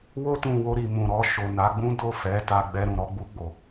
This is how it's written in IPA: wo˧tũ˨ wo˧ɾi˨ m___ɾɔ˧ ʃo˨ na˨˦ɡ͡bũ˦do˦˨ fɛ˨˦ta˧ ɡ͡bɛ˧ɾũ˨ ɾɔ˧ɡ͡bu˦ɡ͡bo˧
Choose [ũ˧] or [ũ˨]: ũ˨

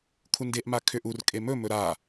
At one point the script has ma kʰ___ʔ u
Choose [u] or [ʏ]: ʏ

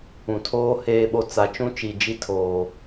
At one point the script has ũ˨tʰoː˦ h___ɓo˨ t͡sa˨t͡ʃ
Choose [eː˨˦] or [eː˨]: eː˨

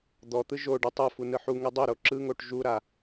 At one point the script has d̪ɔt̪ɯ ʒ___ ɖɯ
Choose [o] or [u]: o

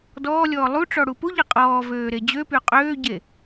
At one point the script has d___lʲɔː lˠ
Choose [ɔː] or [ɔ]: ɔː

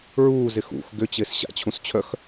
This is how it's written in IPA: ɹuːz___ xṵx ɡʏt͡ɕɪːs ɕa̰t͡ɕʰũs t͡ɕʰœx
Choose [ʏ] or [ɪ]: ɪ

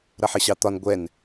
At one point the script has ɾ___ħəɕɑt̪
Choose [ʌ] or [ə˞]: ʌ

